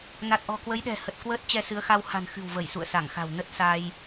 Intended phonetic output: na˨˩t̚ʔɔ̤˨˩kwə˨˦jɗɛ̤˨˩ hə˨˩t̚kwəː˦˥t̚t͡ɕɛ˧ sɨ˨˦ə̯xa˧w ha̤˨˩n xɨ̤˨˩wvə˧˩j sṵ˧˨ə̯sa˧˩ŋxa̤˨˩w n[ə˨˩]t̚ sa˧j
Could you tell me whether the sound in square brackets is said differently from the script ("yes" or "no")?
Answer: yes